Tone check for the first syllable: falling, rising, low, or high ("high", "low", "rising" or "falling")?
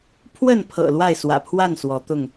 falling